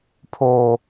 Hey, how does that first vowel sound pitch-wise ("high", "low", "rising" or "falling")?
high